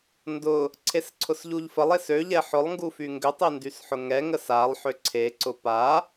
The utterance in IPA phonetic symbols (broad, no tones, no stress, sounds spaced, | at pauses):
n d ʊ | ǀʰ e s ǀʰ ʊ s ʎ u ʎ f ə lˠ e s ø ʎ ɛ ħ ʊ lˠ ŋ ɡ u f y ŋ ɡ ʏ tˤ e n d y s ħ ʊ ŋ ɛ ŋ ə s a lˠ ħ ʏ ǀʰ e ǀ ʊ p a